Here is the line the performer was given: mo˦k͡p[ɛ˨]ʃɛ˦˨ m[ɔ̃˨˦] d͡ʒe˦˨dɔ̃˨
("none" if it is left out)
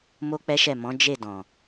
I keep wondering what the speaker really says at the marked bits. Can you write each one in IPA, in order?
ɛ˦, ɔ̃˨˦

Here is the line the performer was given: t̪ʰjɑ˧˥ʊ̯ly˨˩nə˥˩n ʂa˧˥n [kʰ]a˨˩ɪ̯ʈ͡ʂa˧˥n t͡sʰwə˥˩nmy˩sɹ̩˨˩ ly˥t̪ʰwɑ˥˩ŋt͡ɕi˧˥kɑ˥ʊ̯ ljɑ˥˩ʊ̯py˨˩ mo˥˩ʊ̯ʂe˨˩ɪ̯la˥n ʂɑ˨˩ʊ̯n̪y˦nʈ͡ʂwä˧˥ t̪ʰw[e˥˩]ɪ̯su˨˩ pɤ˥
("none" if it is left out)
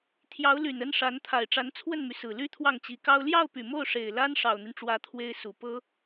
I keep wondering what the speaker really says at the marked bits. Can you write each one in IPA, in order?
t̪ʰ, e˥

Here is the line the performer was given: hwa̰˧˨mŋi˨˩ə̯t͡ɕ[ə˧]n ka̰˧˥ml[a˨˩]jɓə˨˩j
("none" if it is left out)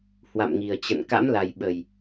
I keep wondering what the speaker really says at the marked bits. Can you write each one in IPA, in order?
ə̰˧˨, a˨˩

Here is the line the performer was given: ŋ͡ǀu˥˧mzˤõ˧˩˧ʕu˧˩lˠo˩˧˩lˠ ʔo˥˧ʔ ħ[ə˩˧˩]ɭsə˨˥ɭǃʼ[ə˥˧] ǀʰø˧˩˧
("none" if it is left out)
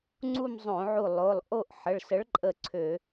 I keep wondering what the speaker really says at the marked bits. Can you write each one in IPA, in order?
ə˩˧˩, ə˧˩

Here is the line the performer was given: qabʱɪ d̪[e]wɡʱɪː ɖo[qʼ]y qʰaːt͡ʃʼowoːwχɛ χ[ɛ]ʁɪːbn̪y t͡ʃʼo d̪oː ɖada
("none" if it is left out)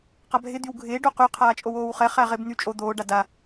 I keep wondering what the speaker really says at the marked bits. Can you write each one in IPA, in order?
y, q, æ

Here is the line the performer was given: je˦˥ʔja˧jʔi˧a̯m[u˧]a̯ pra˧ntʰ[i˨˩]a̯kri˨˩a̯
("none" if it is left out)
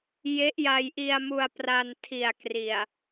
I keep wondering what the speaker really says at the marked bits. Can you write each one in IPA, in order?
u˧, i˨˩

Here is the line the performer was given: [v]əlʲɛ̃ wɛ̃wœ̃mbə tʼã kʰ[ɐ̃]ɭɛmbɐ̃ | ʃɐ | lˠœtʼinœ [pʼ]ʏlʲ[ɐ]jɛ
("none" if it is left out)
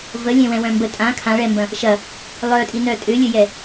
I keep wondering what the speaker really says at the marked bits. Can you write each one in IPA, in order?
v, ã, tʼ, ə

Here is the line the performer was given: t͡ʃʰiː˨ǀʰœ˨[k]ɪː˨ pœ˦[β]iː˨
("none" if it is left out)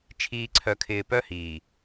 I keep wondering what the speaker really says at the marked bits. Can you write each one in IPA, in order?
kʰ, h

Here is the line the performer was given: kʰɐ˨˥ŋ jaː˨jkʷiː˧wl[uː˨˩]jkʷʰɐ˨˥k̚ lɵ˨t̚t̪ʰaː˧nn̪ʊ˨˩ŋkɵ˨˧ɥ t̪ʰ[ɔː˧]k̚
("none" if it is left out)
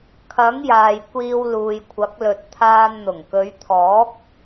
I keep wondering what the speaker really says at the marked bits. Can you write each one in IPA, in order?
uː˨, ɔː˨˥

